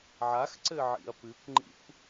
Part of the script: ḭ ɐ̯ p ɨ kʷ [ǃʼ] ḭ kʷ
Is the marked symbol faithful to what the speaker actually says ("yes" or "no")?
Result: no